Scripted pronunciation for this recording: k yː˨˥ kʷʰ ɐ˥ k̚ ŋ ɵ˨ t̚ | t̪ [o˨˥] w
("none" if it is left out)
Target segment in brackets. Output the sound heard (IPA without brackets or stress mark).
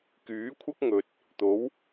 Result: o˨˥